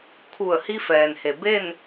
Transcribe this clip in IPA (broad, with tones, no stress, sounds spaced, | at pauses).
kʰ u˧˩ ə̯ h i˧ f ɛː˩ n h e˩ b e˥˨ n